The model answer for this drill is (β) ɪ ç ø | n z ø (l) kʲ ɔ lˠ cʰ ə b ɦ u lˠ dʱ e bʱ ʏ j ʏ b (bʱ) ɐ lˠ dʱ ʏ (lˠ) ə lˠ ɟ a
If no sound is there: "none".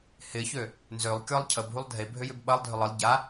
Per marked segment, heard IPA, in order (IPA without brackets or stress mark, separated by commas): h, lˠ, ɓ, lˠ